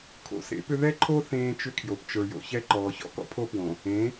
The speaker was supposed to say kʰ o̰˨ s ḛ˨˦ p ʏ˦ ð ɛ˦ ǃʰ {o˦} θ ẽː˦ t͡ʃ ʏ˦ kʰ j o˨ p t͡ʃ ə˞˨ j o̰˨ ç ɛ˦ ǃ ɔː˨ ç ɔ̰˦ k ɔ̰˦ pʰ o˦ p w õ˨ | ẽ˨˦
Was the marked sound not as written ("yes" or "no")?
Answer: no